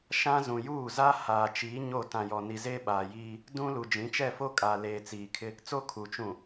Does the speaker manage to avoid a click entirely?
yes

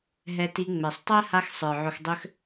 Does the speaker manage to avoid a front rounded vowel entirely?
no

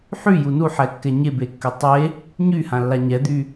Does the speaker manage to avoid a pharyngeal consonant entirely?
no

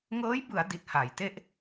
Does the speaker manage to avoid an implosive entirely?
yes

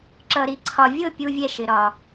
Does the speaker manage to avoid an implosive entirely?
yes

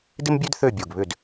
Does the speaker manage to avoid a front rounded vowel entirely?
no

